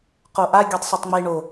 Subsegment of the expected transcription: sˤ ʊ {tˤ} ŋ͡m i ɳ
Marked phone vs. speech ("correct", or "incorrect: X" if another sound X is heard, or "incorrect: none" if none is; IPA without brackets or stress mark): correct